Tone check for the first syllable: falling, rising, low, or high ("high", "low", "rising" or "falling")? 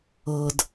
low